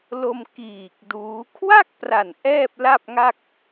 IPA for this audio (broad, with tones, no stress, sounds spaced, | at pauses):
l o˧ m k iː˨˩ k̚ d uː˦˥ kʰ w a˥˩ k̚ p r a˨˩ n ʔ ɛː˥˩ p̚ l a˥˩ p̚ ŋ a˥˩ k̚